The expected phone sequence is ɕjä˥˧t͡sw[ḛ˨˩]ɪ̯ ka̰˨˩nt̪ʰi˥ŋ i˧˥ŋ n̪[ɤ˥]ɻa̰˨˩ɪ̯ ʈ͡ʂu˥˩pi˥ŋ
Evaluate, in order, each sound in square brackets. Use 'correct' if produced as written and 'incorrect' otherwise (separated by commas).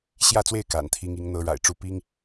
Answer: incorrect, correct